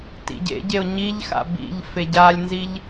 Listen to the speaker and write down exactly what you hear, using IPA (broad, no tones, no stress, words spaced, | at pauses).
tḭɟḛɟeo̯ ɲiʎxa̰ bḭʎ feɟalʲnziʎ